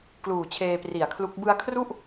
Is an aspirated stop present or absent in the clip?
present